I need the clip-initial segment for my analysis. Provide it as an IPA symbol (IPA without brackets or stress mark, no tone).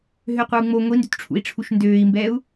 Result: ɦ